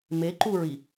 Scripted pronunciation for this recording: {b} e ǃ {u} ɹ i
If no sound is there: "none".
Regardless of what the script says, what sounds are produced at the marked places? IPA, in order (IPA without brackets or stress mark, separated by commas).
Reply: m, u